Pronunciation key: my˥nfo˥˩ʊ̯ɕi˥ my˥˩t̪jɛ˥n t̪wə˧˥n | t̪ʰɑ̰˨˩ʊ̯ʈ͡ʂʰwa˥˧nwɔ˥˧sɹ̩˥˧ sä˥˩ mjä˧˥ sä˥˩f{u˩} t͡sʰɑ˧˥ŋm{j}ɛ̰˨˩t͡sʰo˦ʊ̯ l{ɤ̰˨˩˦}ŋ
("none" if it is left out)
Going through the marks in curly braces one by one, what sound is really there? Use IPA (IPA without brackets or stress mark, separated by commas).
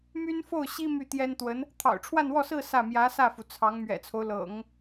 u˩, ɥ, ɤ̰˨˩˦